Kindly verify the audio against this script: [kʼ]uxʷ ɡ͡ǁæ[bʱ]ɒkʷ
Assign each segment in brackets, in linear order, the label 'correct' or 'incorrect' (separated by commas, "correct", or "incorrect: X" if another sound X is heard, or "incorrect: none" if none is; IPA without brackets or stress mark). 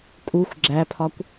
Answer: correct, incorrect: pʰ